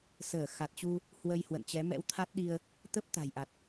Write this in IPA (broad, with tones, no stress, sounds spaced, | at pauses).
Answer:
s əː˧˩ x a˨˩ t̚ t͡ɕ u˧ | h w ə˧ j h w ə̰˧˨ n t͡ɕ ɛ˨˦ m ɛ̰˧˥ w t̪ʰ a˦˥ t̚ ɗ i˧ ə̯ | t̪ ə˦˥ p̚ t̪ a̤˨˩ j ʔ a˨˩ t̚